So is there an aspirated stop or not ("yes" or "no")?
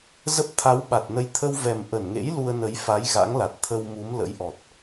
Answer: yes